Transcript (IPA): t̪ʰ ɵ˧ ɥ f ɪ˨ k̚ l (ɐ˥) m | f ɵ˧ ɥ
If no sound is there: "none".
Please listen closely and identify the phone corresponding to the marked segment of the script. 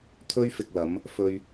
ɐ˨˧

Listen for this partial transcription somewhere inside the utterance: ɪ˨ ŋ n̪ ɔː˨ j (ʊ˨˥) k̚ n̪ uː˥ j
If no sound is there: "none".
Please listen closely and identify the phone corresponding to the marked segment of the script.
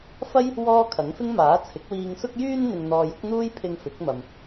ʊ˨˥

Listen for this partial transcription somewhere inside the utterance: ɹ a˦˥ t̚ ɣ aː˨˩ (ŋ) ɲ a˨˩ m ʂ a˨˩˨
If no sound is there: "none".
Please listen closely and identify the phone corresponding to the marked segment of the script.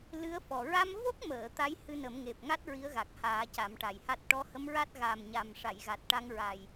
m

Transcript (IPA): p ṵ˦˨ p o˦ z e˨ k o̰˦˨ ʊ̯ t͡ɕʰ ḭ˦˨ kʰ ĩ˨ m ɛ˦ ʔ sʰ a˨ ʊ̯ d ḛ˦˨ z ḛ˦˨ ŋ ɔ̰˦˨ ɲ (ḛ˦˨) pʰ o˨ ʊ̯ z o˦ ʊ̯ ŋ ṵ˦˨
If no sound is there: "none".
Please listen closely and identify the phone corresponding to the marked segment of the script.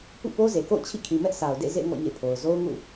ḛ˦˨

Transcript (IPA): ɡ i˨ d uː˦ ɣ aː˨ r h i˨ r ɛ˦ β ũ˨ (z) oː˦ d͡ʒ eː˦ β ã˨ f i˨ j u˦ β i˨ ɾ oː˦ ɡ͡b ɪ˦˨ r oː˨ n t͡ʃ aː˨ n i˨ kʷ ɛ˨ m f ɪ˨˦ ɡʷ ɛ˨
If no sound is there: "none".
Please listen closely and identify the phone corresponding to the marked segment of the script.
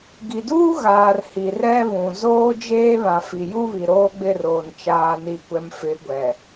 z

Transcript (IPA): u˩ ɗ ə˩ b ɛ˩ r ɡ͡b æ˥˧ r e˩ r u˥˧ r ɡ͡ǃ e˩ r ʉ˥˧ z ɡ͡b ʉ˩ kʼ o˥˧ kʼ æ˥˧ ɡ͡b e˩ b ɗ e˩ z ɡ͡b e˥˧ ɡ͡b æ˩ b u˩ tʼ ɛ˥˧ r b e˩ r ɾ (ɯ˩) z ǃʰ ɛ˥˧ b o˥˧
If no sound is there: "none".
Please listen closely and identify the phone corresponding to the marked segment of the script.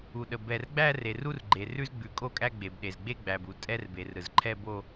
ɯ˩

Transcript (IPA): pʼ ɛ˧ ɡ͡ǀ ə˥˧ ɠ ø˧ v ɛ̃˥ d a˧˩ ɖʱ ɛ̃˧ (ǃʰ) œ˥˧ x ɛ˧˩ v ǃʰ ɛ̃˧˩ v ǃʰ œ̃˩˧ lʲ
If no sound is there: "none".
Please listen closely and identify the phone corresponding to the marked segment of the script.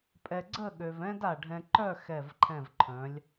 ǃ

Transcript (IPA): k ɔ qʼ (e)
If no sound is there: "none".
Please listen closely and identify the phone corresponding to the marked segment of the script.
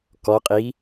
i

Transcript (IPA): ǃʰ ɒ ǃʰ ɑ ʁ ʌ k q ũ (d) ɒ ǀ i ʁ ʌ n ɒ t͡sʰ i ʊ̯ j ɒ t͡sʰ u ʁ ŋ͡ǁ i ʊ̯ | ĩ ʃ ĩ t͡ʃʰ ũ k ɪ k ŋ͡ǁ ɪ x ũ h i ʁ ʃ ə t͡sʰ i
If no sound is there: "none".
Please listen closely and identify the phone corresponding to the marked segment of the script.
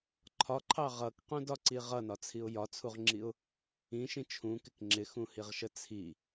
d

